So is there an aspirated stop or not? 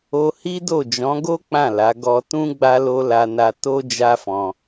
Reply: no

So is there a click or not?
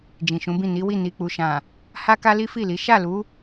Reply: no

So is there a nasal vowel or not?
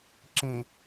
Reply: yes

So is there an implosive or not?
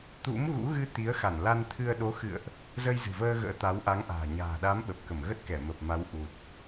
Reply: yes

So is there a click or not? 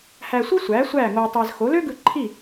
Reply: yes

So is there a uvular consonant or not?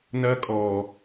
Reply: no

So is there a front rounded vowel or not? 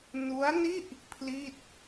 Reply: no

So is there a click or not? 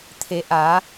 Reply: no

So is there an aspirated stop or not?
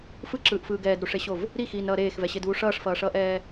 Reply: no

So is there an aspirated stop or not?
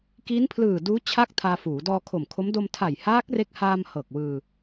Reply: yes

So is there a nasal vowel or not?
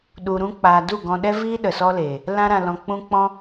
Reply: yes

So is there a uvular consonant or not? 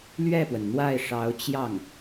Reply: no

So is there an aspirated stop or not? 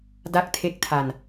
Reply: yes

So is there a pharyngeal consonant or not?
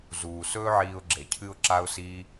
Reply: yes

